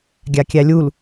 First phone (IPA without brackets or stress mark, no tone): ɡʲ